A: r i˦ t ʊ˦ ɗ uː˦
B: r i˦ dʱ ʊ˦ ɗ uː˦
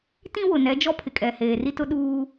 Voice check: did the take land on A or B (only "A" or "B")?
A